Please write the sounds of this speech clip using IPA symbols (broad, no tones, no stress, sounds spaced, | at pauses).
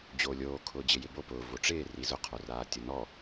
d͡ʑ oː lʲ oː kʰ ʊː d͡ʑ ɪ j ɪ b o p ʊː v o ʈ͡ʂ ɪː r i z ʊ qʰ o r aː tʲ ʊ n ɔ